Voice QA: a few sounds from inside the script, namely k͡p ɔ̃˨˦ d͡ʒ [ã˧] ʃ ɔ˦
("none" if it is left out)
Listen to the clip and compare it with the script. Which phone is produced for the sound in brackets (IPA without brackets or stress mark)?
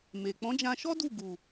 ã˧